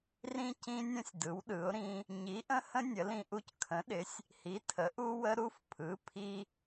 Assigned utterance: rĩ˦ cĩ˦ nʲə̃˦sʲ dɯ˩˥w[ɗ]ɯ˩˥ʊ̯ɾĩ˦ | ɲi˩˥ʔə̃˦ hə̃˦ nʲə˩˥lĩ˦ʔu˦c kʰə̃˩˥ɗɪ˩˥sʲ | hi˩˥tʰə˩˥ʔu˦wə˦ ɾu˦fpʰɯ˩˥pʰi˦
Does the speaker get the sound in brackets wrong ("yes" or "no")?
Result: no